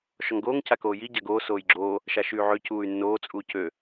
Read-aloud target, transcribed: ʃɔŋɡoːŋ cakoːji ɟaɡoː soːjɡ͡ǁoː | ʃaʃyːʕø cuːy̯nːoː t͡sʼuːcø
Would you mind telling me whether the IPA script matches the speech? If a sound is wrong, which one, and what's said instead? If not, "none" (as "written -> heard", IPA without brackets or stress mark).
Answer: none